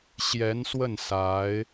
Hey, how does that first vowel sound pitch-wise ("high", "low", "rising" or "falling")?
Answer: rising